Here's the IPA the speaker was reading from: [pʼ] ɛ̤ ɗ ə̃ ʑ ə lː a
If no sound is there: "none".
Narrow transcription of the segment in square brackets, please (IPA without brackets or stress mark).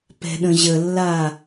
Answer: p